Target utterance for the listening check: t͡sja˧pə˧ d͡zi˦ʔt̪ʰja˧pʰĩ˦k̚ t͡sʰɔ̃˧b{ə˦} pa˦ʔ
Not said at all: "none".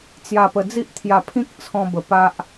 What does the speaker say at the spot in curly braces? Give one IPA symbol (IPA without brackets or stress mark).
ə˨˩